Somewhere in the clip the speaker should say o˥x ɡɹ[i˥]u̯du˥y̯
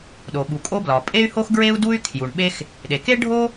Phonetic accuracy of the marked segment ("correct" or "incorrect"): incorrect